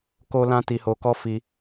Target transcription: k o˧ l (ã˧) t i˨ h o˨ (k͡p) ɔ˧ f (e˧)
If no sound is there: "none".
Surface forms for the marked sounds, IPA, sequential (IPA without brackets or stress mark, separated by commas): ã˧, k, i˧